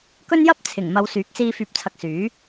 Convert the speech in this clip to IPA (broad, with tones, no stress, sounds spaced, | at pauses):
k ɵ˥ n j ɐ˥ p̚ t͡sʰ ɪ˨˩ ŋ m ɐ˨˧ w s yː˨˥ k̚ s iː˧ f yː˨ p̚ t͡sʰ ɐ˨˥ k̚ s yː˨˥